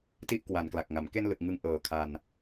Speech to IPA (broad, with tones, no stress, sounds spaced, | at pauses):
t i˥˩ ʔ k w a˨˩ n k l a˨˩ k̚ ŋ a˩˦ m k e˧ n l ɯ˨˩ k̚ ŋ ɯ˧ ŋ ʔ ɤː˨˩ kʰ a˧ n